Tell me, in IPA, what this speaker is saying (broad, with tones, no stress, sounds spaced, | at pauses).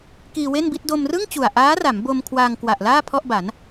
k iː˧ w e˥˩ n b i˥˩ t̚ d o˧ m r ɯ˥˩ ŋ t͡ɕ u˨˩ a̯ ʔ aː˦˥ r a˩˦ m b o˧ m kʰ w aː˧ ŋ k w a˨˩ ʔ l aː˥˩ pʰ ɔ˥˩ ʔ b a˩˦ n